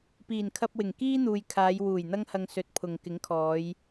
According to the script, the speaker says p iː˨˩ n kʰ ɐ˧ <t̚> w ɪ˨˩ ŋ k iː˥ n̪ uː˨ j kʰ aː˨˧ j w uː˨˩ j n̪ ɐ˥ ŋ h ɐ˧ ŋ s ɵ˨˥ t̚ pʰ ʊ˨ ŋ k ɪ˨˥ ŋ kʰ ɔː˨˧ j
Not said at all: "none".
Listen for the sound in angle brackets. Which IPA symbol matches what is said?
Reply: p̚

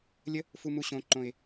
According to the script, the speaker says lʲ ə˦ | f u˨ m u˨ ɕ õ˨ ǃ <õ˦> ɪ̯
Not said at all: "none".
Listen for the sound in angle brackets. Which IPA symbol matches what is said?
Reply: õ˨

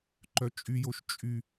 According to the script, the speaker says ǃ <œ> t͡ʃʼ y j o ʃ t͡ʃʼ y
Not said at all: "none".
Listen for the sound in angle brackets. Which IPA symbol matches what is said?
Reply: œ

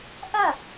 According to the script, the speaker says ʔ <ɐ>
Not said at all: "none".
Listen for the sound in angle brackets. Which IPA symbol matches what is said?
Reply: ɐ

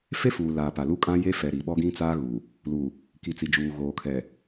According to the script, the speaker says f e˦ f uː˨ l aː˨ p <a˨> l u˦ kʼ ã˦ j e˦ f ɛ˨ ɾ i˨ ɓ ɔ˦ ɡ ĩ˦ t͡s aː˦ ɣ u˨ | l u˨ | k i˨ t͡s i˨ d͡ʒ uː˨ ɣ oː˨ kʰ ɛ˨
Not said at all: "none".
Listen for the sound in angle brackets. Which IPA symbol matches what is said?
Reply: a˨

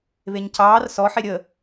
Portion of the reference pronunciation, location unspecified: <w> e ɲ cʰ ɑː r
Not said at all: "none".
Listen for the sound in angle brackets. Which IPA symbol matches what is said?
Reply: β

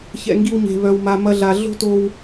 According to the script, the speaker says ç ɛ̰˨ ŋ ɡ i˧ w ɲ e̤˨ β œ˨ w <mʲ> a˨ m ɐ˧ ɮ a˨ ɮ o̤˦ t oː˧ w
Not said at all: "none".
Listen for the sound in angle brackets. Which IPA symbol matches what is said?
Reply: m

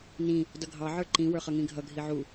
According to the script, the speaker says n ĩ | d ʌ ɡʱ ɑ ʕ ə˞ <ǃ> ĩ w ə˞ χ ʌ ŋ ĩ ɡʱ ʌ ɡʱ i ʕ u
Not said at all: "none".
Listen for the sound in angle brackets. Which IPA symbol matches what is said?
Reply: ǃ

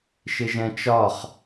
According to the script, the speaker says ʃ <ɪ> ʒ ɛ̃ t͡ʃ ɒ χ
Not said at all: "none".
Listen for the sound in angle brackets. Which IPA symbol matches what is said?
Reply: ɪ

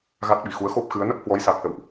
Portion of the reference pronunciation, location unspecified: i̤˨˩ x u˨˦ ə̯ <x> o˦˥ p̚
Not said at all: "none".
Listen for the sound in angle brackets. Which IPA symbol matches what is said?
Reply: x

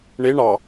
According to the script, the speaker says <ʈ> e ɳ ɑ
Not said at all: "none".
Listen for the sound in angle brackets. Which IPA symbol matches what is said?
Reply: ɳ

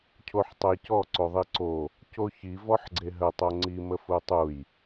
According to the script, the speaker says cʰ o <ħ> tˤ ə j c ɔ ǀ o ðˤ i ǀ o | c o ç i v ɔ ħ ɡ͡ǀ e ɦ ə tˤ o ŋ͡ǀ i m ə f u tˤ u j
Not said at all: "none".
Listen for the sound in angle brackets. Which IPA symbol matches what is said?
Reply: ħ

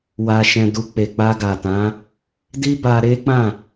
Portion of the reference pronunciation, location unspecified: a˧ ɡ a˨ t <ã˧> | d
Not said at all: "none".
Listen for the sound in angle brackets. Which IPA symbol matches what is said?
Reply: ã˨˦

